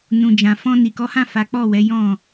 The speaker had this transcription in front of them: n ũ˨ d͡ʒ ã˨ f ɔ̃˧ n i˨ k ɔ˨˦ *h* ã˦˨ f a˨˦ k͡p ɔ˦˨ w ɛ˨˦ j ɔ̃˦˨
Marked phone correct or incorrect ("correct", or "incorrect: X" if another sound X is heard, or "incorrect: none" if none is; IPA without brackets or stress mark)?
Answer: correct